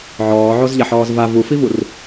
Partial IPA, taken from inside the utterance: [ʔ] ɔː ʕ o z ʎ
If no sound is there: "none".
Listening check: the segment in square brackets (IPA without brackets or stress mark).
ʕ